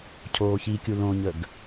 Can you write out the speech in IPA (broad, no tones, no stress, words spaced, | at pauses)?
cʰoːçikʲu lõɲəɡ